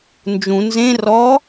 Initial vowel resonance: nasal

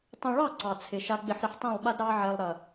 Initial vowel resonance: nasal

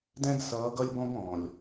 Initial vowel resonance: nasal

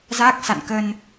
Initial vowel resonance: oral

